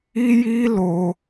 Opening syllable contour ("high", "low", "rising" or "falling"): high